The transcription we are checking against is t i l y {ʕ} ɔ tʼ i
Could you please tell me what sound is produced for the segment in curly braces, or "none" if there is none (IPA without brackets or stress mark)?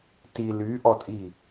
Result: ʔ